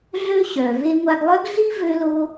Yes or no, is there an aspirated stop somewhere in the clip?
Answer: no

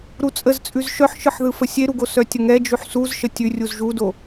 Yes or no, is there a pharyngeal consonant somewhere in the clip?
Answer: yes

